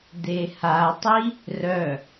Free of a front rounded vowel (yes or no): no